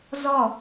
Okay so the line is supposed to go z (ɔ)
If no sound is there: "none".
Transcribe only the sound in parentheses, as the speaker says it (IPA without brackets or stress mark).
ɔ